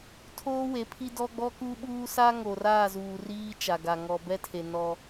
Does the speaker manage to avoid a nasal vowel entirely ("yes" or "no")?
yes